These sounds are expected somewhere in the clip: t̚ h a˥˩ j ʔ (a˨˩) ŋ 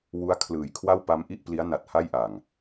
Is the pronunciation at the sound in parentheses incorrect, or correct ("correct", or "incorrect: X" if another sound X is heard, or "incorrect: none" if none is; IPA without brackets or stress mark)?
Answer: correct